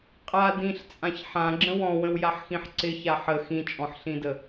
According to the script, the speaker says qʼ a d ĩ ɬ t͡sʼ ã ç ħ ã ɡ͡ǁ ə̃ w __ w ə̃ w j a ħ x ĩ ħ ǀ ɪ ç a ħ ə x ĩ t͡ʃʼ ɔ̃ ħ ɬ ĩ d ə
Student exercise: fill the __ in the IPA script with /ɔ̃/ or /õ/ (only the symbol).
ɔ̃